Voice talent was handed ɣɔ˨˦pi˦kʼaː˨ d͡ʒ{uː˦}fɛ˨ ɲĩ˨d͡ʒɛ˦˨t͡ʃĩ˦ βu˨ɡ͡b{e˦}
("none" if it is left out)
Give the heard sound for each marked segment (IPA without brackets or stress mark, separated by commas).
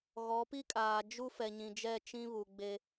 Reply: u˦, e˦